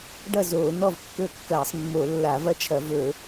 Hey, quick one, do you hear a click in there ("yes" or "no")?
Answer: no